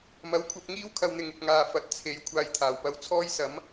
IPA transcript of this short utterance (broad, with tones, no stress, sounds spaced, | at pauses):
m ɐ˨˥ w kʷʰ ɐ˧ p̚ ŋ iː˥ w kʰ ɐ˧ w n̪ ɪ˨ ŋ ɪ˨ k̚ ŋ aː˨ f ɐ˨ t̚ t͡sʰ e˨˧ j kʷʰ aː˨ j t̪ʰ aː˨˩ w p ɐ˨˥ w t͡sʰ ɔː˥ j s ɐ˨˥ m